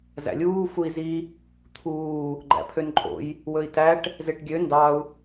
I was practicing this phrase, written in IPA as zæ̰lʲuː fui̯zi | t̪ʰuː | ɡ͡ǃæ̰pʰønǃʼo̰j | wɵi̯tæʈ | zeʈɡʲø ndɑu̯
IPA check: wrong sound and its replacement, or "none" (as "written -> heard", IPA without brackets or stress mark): none